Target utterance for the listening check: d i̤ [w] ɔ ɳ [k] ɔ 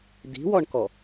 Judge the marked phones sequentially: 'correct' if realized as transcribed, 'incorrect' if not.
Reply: correct, correct

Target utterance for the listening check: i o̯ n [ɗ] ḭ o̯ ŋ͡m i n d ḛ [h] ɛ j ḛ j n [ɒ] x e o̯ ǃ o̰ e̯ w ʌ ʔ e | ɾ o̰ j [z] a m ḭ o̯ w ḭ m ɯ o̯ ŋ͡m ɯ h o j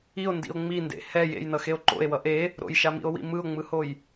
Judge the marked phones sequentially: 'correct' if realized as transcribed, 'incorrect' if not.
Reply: incorrect: d, correct, incorrect: ʌ, incorrect: ʃ

